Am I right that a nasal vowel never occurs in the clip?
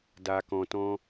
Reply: no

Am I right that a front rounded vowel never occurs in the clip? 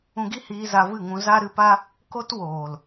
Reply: yes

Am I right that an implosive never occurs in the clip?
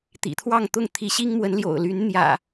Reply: yes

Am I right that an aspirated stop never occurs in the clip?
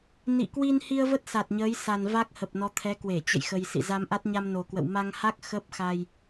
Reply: no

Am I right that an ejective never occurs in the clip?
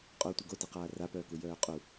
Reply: no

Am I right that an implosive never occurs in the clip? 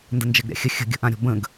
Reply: yes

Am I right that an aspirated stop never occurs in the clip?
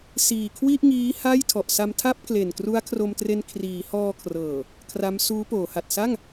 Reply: no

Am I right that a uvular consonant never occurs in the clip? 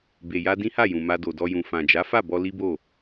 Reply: yes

